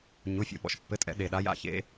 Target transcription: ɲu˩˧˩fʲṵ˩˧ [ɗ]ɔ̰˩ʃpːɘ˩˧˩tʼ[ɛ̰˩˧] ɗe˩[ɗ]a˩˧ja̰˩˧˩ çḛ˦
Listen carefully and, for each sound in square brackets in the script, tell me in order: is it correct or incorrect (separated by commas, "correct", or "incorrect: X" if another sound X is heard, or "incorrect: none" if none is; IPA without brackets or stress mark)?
incorrect: ɓ, correct, correct